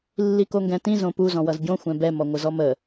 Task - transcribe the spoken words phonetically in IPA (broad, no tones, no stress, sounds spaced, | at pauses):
lː i k o ŋ ɡ ɛ̃ t ĩ z õ p u z ɔ̃ w ʌ z ɟ õ xʷ ɛ̃ b ɛ m ɔ ŋʷ ə z ɔ m ə